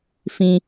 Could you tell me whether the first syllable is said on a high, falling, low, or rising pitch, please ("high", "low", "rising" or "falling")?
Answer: high